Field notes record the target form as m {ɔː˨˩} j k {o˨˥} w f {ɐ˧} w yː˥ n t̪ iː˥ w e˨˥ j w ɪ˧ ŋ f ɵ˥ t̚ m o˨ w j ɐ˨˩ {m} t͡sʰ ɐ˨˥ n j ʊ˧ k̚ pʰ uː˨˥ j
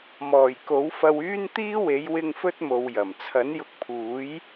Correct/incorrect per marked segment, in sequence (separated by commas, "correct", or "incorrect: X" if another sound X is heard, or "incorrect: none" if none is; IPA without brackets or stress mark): correct, correct, correct, correct